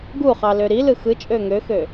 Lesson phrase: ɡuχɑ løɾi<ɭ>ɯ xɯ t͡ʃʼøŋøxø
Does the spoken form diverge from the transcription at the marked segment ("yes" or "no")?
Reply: yes